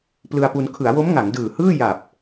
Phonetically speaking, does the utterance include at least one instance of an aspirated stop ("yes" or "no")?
yes